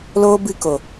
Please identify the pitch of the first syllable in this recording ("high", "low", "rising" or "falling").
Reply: high